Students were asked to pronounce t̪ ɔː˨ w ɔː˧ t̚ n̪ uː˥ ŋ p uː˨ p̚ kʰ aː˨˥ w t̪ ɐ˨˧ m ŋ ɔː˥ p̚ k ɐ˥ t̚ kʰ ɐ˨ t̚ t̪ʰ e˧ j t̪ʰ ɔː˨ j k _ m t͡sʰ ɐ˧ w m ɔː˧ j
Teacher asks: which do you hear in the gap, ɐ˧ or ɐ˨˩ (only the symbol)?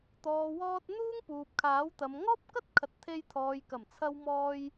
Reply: ɐ˨˩